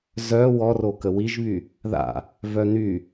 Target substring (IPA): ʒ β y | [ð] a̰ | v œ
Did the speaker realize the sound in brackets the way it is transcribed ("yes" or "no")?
yes